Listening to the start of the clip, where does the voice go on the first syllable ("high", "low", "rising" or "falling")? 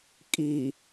low